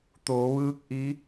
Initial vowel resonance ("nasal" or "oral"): oral